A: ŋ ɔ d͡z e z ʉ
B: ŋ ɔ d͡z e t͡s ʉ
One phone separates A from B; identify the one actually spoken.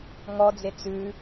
B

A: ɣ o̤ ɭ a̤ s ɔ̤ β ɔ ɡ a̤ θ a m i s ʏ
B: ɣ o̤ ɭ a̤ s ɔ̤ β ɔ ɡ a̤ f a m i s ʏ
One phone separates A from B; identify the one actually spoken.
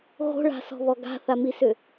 A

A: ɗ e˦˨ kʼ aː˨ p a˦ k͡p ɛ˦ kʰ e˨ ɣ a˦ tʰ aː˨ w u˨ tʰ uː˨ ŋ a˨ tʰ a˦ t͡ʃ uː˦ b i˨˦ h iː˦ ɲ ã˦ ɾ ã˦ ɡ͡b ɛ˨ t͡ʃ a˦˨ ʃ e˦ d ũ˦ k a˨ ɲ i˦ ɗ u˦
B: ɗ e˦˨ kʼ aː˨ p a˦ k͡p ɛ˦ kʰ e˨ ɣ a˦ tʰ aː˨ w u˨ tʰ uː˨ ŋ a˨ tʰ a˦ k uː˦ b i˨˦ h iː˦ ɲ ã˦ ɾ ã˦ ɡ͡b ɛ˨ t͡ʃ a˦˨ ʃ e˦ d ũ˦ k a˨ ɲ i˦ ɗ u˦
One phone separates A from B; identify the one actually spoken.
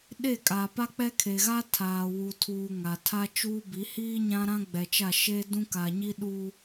A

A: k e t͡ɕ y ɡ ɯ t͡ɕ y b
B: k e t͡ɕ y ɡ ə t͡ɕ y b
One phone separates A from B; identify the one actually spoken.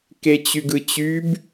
A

